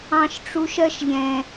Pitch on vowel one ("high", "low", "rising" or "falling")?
high